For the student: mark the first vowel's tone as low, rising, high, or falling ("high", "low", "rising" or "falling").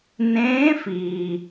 rising